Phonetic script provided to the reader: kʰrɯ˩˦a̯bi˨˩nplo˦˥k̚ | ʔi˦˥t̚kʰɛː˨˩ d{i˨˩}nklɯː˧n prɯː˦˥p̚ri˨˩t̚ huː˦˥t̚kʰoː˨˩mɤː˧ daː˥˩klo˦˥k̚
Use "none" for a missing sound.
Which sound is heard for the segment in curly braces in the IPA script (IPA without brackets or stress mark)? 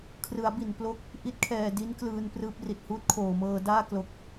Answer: i˦˥